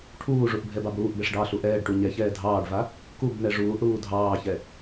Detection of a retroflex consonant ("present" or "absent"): present